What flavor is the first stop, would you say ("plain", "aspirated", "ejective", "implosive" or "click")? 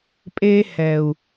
ejective